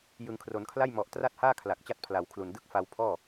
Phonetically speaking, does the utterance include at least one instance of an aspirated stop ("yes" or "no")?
yes